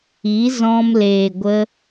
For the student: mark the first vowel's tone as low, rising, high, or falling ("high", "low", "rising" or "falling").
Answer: rising